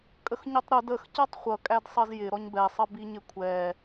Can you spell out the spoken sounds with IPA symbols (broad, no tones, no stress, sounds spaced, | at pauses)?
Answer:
kʼ ə x ɲ ʊ tˤ ɾ ʊ d ə x c ʌ tˤ χʷ ʌ kʼ æ d sˤ ʌ z j ɪ ɾ ɔ ɲ b ɛ sˤ ʌ b i ɲ ɪ kʷʰ ɛ